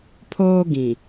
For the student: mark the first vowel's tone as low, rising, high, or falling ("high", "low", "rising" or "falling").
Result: high